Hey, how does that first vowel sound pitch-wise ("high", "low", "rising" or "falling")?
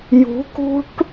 rising